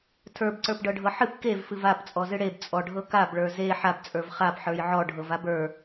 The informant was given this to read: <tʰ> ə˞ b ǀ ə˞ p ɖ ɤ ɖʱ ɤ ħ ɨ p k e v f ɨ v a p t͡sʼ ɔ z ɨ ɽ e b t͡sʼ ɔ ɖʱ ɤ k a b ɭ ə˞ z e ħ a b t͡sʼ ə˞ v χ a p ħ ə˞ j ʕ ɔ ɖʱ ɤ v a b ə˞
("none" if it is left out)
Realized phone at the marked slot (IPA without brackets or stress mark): tʰ